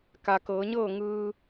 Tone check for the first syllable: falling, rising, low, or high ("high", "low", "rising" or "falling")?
low